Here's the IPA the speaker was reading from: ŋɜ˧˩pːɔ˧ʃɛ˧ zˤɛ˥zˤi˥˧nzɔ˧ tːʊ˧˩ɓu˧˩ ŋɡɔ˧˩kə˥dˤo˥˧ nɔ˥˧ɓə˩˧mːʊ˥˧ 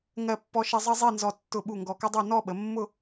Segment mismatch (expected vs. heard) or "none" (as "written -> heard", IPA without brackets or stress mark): none